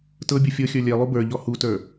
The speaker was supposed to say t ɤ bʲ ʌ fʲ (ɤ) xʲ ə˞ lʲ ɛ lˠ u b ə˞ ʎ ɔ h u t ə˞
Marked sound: correct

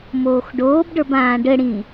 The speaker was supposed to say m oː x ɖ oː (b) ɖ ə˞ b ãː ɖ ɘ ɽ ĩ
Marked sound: correct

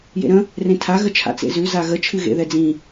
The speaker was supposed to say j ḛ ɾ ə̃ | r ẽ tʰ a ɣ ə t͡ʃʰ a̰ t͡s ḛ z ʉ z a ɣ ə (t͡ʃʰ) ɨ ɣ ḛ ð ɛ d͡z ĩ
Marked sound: correct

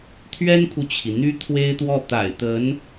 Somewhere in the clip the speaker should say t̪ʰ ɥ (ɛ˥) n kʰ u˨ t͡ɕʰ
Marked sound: correct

